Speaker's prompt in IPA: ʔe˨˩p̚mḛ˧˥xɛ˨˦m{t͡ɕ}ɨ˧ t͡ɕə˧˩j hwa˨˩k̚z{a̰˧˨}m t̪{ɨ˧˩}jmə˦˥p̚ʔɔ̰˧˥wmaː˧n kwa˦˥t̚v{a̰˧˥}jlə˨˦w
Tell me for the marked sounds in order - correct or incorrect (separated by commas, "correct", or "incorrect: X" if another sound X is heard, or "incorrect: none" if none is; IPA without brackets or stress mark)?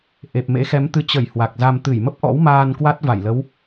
incorrect: t̪, incorrect: a˧, correct, incorrect: a˧˩